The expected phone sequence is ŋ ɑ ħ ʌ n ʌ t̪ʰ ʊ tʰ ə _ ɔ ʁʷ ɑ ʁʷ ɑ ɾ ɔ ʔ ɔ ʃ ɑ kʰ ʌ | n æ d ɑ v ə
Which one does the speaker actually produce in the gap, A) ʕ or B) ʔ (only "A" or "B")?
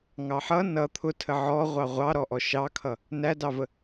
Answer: A